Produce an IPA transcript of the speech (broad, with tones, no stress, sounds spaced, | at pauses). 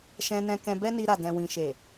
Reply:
ʃ ɛ̃˧ n ɛ̃˧ k ɛ̃˧ b ɛ˦ n i˧ ɾ a˨ d ɛ̃˨ w ĩ˨ ʃ e˨